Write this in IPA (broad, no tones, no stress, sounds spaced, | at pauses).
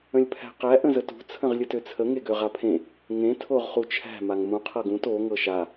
ə̃ lʲ pʰ æ̤ q æ ʔ ə̃ z ə t ṳ t͡sʰ ə̃ ʁ lʲ ə t ø t͡sʰ ə ŋ e ɡ ø ʁ a pʰ ẽ | ŋ ẽ tʰ o ʁ χ u t͡ʃʰ æ̤ m a ŋ m ũ qʰ ɤ ɡ ũ t o ŋ ɤ ʃ a